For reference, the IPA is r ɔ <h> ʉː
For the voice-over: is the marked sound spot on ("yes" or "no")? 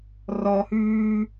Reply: yes